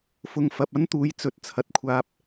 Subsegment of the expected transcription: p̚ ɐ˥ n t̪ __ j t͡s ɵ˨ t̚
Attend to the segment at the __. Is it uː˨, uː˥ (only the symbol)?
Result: uː˨